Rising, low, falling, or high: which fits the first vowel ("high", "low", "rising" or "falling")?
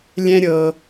high